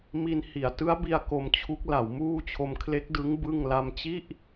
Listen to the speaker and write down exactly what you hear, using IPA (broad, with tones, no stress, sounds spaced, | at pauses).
m i˧ n h i˩˦ a̯ t ɯ˦˥ a̯ b i˧ a̯ k o˧ m t͡ɕʰ u˦˥ k̚ l a˩˦ w m uː˥˩ t͡ɕʰ o˧ m kʰ l e˦˥ k̚ d ɯ˦˥ ŋ b ɯ˥˩ ŋ l a˥˩ m t͡ɕ i˥˩ ʔ